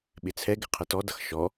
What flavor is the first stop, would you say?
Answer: implosive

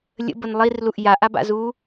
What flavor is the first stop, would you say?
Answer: plain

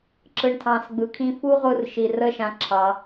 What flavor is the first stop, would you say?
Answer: click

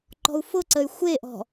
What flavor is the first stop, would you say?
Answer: click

